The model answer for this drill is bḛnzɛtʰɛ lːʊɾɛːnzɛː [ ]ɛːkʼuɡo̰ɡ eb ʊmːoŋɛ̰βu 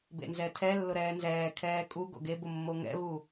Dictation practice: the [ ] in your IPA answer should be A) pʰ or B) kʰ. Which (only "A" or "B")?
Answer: B